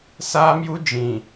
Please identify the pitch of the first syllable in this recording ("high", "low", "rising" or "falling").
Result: high